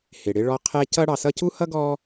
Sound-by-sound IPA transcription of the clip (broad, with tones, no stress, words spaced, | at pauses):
hɪ˩ɽɪ˦ɭɔ˦ qʰɛ˦cʌ˥ ɽɑ˨sʌ˦cu˥hʌ˥ ɡɔ˥